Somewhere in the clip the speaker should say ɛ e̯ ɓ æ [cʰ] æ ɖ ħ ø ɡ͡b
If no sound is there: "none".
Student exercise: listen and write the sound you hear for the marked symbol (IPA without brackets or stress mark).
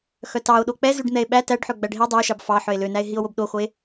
t